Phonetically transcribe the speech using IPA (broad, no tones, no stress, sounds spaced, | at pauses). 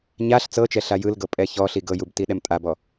ɲ a ɬ t͡s ɤ t͡ʃ ɛ ɬ a j ɯ l ɡ ɤ pʼ ɛ ç ɔ ɬ i ɡ ɤ j u b t i ɗ ɛ m tʼ a b ɔ